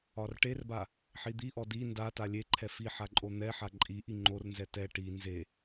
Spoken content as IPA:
ɒ r ʈ e r b a | ħ i d̪ i ʔ ɔ d i n d a t a lʲ e ǃʰ ɛ f i ħ a ǃʼ o n̪ ɛ ħ a ǃʼ i ʔ i ŋ͡ǃ o r n z ɛ t ɛ ʈ i n z e

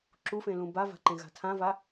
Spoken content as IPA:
ǁ u f ẽ l ũ b a v a̤ ǃ ẽ ɣ a̤ tʰ ã v a

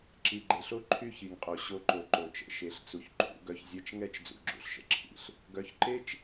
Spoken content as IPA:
ǁ i˨ ɡ͡ǃ e˨ ɬ o˦ ǃʰ y˦ ç i˨ ŋ qʼ o˨ ɕ o˧ ǃ o˨ ǃ o˨ t͡ʃ ə̰˦˨ ʃ e˨˦ ɬ t͡s u˨ ç ǃʰ ṵ˦ ɡ œ˦ ç zʲ ɛ˧ t͡ʃ ŋ ɛ˦ t͡ʃ d͡z ṵ˧ ɡ͡ǁ ṵ˧ ɬ ʃ ə̰˨ ǁʰ ḭ˦ ɬ | ɡ œ˨˦ ç ǃ e˦ t͡ʃ

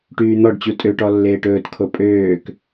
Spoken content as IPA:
ʈ yː n̪ ɔ ɖ t͡ɕ u tʼ ø ʈ ɔ lː eː ʈ ɵː t kʰ o pʼ øː k

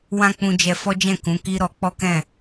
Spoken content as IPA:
w ã˦ k͡p ũ˧ d͡ʒ ɛ˧ f ɔ˦ d͡ʒ ɛ̃˦˨ k ũ˨˦ k i˦ ɾ ɔ˧ k͡p ɔ˦ k ɛ̃˦˨

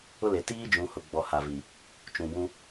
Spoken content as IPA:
ʊ˦ l e˨ t iː˦ d͡ʒ ũ˨ h ʊ˨ ɡ͡b ɔ˨ h a˨ v i˨ | t͡ʃ ũ˨ b ũ˦

